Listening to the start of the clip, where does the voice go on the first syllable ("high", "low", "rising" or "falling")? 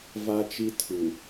high